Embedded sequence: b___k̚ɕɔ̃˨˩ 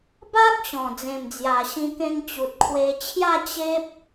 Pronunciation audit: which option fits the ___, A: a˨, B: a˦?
B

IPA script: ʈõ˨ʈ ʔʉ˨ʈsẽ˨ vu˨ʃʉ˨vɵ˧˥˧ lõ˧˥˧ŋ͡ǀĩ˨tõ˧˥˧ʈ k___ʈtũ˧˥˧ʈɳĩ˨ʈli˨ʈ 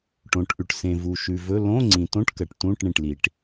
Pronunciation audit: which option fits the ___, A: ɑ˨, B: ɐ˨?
B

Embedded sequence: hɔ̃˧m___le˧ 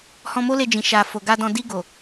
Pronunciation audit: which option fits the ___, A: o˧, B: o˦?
B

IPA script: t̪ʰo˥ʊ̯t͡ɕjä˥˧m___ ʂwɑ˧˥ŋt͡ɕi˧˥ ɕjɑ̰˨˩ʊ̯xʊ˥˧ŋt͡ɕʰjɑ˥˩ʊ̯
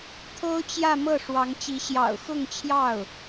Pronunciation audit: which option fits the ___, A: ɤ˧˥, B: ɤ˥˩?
B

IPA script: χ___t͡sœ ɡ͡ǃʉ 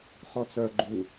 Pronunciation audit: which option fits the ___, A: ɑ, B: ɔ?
B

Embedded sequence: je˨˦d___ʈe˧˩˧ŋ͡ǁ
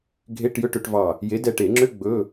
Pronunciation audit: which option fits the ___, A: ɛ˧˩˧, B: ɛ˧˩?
B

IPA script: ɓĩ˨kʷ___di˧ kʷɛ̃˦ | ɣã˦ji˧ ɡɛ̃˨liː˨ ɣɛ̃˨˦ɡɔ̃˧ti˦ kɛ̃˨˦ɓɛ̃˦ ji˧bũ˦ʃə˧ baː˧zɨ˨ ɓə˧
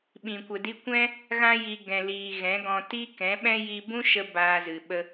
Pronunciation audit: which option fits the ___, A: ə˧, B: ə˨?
B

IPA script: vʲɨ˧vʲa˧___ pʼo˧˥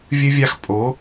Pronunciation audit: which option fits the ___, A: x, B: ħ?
A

